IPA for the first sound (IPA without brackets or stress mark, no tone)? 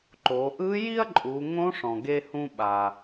ǃ